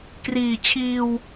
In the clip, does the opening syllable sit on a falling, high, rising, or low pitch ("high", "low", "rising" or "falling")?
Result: low